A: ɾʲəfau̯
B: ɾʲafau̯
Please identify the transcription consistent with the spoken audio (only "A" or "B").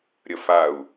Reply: A